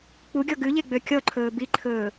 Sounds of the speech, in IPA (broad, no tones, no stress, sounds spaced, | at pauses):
k͡p u ɡʲ ɔ ɡ ʉ ʎ e ɡ͡b ø kʲ ɔ ǃʰ ɵː b i ǃʰ ɵː